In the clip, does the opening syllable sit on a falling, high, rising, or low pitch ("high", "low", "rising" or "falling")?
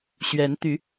rising